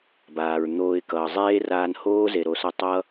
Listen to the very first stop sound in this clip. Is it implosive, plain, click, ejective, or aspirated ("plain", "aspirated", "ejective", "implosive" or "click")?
plain